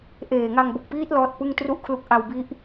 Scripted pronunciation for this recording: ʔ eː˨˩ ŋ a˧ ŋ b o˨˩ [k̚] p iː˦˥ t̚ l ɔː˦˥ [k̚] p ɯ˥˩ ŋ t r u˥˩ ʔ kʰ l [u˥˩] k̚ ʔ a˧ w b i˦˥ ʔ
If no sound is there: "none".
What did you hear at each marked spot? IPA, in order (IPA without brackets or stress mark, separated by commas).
k̚, t̚, u˦˥